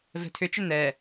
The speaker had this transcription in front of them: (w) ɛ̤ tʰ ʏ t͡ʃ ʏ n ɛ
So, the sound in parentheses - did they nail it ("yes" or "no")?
no